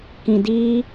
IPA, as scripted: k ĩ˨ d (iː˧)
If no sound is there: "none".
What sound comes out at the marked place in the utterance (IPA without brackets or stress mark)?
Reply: iː˧